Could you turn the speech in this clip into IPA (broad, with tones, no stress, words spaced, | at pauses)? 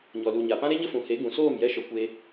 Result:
ɲɔ˨lu˨ ɲa˨pã˦ ɾe˦ɲə˦fũ˨he˨˦ ɡũ˨soː˦˨m jɛ˦ʃɔ˧ kʷe˧